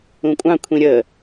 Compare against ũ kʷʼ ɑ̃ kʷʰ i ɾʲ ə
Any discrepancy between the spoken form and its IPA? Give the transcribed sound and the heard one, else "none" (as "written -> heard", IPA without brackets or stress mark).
i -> ĩ